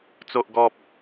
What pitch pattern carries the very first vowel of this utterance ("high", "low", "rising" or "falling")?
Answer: low